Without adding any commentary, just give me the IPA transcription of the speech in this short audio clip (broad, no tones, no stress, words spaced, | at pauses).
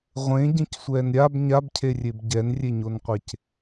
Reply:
ʁʷẽɟẽcsʷɛːn ɾʲab ɲabcʰerʲeb ɟɛnrʲeɲonqʷec